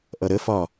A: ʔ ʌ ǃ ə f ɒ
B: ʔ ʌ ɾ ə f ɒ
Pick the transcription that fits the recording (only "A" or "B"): B